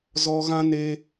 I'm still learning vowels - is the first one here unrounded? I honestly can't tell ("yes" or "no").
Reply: no